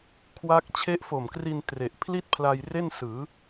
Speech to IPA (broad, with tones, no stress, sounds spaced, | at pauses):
kʰ w a˦˥ k̚ t͡ɕʰ e˦˥ ʔ f o˨˩ m k r i˧ n t r e˨˩ ʔ pʰ l i˥˩ t̚ pʰ l a˧ j r e˥˩ n s ɯː˩˦